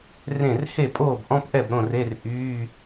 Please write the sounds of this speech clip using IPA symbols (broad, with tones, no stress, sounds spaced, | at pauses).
r ẽ˥˨ r h e˥˨ pʼ oː˥˨ b ʔ ɔ̃˧˥˧ p ʔ ɛ˥˨ b ɾ õ˥˨ r e˧˥˧ r ʔ yː˧˥˧